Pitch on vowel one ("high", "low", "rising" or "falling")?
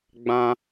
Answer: high